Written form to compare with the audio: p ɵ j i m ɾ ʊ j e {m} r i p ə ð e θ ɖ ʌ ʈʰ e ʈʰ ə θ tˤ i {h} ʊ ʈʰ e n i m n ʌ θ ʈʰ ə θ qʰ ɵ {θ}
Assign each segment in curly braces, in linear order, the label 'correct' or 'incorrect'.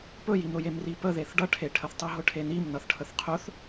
correct, incorrect: ɦ, correct

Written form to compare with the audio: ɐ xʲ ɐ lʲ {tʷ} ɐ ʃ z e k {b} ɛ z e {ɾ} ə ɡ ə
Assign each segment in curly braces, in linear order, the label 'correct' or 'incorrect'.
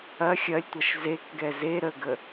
correct, incorrect: ɡ, correct

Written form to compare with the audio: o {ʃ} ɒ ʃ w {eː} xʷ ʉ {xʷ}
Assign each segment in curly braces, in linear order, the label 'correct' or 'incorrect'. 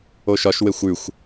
correct, incorrect: e, correct

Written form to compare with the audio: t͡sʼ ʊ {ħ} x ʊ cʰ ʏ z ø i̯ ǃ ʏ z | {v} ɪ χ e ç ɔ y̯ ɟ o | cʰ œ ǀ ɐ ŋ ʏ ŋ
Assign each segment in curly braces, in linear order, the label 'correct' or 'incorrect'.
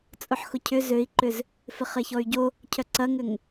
correct, incorrect: f

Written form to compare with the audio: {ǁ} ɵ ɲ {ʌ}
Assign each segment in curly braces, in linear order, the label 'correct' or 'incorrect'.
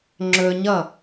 incorrect: ŋ͡ǁ, correct

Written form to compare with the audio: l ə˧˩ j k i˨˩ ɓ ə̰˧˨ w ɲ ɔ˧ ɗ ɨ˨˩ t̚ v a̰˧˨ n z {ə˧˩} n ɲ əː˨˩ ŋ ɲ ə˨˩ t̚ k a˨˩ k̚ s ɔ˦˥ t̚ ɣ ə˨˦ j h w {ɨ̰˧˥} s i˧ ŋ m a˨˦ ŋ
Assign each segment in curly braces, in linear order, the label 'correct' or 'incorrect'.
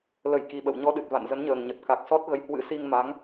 incorrect: ə˨˦, correct

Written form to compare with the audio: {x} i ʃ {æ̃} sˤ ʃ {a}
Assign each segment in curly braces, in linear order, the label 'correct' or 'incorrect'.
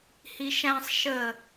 incorrect: h, correct, incorrect: ə

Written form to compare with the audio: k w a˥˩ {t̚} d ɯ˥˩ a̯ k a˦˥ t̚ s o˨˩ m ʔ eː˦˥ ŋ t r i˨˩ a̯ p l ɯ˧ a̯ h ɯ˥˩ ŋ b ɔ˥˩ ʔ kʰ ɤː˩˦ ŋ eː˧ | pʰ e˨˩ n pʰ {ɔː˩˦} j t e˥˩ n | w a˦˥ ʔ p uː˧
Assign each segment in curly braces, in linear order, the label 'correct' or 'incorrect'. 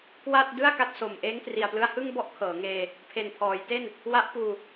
correct, correct

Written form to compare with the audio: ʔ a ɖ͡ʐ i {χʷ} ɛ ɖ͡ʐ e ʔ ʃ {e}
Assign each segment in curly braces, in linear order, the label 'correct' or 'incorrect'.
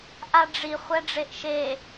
correct, correct

